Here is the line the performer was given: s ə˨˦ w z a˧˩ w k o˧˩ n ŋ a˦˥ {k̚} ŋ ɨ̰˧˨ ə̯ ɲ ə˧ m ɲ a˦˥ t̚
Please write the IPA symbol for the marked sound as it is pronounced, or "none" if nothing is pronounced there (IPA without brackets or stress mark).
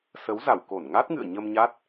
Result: t̚